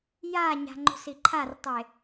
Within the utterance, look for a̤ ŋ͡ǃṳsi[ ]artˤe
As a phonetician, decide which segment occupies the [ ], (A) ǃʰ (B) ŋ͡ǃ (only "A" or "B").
A